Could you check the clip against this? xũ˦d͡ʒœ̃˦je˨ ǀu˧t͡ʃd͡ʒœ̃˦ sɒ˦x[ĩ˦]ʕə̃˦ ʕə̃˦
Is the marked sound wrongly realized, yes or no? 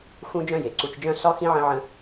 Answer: no